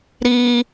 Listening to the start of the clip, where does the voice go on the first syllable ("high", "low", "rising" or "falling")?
high